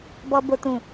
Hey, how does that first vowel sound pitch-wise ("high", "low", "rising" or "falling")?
high